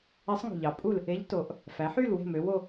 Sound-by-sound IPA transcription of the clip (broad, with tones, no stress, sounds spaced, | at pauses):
e˧˥ sˤ ŋ ṳ˨˩ ʎ ɑ˩˥ pʼ u˦˨ l | e˧˥ ʎ t o˩˧ ʔ | f æ˩˧ ħ y˦˨ l w e̤˦˨ m ø˩˧ w o˦˨